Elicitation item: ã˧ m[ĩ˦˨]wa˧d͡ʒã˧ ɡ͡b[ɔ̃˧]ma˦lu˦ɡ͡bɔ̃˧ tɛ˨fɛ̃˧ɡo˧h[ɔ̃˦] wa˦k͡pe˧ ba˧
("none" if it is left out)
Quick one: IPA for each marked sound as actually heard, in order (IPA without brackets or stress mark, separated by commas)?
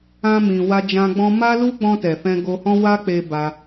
ĩ˨, ɔ̃˧, ɔ̃˦